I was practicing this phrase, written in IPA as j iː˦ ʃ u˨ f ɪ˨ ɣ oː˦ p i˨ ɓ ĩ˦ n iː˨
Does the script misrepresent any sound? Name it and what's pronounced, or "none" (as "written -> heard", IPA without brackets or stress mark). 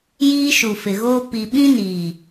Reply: none